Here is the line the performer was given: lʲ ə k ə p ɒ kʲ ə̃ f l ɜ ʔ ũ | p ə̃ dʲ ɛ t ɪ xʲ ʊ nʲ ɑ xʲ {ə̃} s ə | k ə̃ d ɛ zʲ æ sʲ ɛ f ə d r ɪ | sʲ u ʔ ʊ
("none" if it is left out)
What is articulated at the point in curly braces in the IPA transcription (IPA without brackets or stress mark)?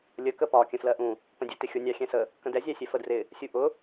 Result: ɛ̃